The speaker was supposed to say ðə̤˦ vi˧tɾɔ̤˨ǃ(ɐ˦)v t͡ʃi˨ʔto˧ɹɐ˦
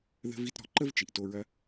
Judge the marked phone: incorrect: ə˦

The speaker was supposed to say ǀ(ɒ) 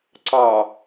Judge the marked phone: incorrect: ɑ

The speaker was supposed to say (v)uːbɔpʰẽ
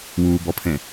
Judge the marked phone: incorrect: w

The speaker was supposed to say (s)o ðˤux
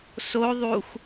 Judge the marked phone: correct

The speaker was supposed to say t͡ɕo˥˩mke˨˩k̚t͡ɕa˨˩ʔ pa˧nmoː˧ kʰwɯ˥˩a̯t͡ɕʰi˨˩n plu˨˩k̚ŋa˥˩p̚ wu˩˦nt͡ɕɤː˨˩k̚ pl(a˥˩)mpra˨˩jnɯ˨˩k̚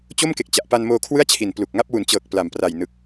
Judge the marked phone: incorrect: a˨˩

